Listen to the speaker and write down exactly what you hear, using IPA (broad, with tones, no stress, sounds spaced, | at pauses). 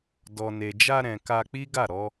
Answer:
d ɔ˨ n e˨ d͡ʒ a˧ ɾ ɛ̃˨ k a˧ k͡p i˦ ɡ a˦˨ ɾ ɔ˧